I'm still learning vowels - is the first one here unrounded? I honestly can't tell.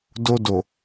no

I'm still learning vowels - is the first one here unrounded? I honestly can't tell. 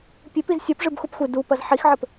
yes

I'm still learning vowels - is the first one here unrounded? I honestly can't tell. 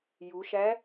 no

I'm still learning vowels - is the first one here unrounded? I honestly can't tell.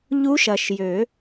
no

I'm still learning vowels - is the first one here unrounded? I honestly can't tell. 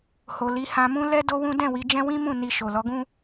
no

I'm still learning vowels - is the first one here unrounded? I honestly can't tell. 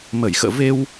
yes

